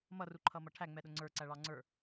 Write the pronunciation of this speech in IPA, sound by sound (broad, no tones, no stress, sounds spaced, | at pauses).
m ʌ r u ǃʰ ʌ m ʌ ʈʰ æ ŋ͡m ɛ ɗ ʊ ŋ͡ǀ ə˞ ǀ æ ɭ ɑ ŋ͡ǀ ə˞